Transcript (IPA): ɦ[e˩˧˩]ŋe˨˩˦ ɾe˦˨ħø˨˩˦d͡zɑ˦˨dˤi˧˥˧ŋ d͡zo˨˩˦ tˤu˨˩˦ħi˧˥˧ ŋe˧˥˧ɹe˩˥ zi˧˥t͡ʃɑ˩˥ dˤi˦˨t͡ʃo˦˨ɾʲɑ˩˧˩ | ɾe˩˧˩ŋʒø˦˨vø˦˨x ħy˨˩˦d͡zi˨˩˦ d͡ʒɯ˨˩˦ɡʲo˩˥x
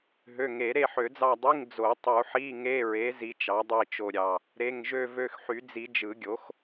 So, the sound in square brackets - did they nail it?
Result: no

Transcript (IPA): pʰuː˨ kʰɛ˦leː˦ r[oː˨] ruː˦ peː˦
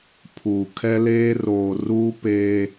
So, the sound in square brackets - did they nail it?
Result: yes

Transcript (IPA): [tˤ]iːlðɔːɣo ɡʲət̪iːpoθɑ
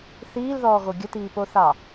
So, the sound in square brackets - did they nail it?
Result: no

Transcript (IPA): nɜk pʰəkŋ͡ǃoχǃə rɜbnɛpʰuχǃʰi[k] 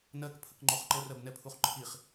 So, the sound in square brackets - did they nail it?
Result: no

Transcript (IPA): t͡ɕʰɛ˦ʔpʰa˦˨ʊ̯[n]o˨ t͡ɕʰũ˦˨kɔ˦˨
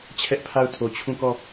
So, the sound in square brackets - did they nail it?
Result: no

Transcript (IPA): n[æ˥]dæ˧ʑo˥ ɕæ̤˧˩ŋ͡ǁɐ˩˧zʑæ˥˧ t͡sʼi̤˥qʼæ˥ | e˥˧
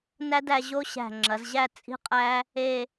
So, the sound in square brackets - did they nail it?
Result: yes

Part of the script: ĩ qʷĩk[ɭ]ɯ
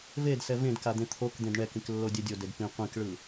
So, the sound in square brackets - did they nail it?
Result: yes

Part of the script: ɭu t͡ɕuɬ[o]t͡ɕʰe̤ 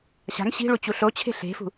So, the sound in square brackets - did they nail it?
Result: yes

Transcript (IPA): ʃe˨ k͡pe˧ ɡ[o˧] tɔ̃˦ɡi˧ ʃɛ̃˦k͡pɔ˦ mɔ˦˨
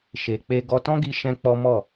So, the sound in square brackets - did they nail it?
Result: no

